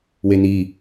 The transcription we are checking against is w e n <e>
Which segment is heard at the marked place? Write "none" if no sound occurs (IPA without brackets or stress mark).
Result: i